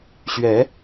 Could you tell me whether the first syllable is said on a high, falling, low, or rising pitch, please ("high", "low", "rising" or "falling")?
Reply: rising